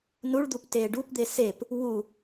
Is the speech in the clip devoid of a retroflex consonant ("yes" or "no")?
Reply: no